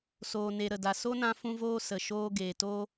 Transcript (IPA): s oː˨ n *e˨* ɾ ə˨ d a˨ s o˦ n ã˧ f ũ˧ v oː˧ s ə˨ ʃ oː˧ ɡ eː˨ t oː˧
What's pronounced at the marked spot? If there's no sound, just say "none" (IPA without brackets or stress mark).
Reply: e˨